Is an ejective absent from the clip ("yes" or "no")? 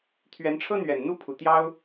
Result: yes